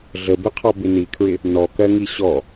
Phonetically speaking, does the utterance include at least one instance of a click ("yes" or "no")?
no